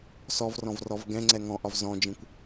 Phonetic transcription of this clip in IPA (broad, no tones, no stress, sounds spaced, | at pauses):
s ɔ v r ɔ̃ v r ɔ v ɡ ɛ̃ ŋ͡ǀ ɛ ŋ ɔ̃ ʔ ɒ v z ɔ̃ d͡ʒ ĩ kʷ